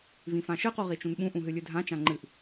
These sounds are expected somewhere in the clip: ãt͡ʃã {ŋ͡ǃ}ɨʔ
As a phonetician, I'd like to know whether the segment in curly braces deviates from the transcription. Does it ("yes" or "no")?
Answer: no